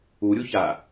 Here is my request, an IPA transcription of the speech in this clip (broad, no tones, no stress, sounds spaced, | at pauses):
u ɾʲ u ç a